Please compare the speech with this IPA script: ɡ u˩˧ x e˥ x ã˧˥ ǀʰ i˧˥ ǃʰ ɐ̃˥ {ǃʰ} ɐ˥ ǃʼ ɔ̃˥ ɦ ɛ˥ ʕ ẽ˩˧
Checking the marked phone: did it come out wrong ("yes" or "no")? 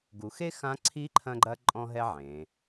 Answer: yes